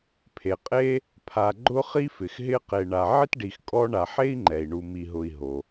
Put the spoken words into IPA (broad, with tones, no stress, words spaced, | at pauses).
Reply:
pʰe˩qʼe˦ | pʰa˨ɡ͡ǃʊ˥χi˥ fɪ˩xɦɪ˦qe˨ ɳa˨ ʕɪ˥tɖi˨xkʼɔ˦ ɳa˨ħe˥i̯ ŋ͡ǃɛ˩i̯ɳu˨mi˨ɦʊ˨i̯ ɦo˩